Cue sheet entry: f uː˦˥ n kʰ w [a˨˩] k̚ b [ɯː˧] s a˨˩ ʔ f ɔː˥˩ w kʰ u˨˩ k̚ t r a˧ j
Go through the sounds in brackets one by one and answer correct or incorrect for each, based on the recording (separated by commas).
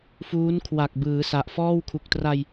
correct, incorrect